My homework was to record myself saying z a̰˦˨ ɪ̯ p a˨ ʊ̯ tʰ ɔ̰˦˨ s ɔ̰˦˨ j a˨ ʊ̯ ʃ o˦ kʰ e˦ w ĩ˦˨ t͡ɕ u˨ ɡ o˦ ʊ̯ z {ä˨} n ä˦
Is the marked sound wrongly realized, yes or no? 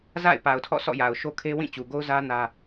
yes